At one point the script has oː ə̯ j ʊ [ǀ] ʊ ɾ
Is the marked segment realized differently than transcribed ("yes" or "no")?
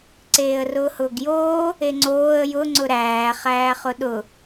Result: yes